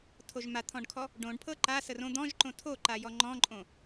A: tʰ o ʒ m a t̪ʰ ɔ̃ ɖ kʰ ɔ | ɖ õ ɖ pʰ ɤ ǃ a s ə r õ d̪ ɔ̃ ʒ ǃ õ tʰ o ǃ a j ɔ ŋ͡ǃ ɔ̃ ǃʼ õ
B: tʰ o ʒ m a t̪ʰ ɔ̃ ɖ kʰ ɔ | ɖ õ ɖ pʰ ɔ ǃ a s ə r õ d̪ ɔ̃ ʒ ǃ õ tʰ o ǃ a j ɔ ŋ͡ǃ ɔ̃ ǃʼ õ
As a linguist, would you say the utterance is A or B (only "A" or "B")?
A